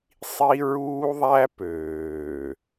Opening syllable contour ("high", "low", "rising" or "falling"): high